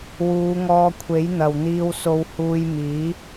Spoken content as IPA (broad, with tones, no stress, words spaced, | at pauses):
wuː˨˧ŋɔː˧kʷʰe˨˥j n̪ɐ˨wn̪iː˧wso˧whuː˧j miː˨˥